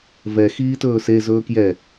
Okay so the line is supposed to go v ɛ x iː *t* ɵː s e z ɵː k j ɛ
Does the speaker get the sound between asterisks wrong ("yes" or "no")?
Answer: no